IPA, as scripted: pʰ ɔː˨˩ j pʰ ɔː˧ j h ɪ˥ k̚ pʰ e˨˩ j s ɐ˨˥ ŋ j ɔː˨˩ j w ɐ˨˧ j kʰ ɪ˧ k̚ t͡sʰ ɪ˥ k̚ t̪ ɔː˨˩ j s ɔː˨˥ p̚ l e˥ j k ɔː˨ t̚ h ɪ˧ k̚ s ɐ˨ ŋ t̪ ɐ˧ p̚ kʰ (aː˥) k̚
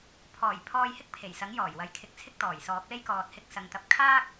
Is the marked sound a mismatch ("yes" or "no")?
no